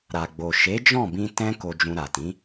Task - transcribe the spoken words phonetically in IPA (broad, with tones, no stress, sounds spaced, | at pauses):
ɾ a˨ ɡ͡b o˨ ʃ e˨˦ d͡ʒ ɔ̃˦˨ b ĩ˧ t ɛ̃˦ k o˧ d͡ʒ ũ˧ ɾ a˨ t ĩ˨˦